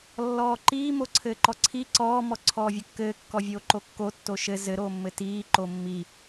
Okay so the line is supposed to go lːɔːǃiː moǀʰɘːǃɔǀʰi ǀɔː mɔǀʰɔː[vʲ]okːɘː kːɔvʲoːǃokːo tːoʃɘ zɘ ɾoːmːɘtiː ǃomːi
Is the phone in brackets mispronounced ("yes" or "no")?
no